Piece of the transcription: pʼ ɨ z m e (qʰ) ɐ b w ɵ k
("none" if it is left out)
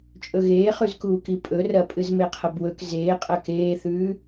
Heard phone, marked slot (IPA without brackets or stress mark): qʰ